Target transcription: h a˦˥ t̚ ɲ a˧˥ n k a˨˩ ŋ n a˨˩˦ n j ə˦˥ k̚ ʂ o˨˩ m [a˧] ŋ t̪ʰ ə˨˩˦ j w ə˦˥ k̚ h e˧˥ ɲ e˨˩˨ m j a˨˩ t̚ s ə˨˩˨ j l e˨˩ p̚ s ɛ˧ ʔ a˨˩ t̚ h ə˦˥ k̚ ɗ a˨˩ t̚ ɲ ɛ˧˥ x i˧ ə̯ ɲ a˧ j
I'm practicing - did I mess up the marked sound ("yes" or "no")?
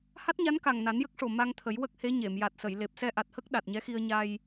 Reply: no